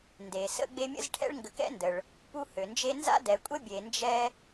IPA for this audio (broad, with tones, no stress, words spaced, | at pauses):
nde˩sə̰˦ ɡ͡be˦mʲə̰˥zʈʰɛ̰˥ɭ ŋɡə˨kɛ̰˥ndə˩ɭ | pu˦hø˩nd͡ʒe˦ nza̰˥dɛ˨kʷʼə˥ bʲe˨nd͡ʒɛ˦